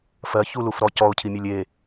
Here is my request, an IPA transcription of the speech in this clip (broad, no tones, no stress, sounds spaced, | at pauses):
f ɜ ç u l u f ɾ ɔ c ɔ ʊ̯ cʰ i mʲ e lʲ e